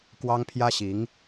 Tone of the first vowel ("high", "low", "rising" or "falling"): high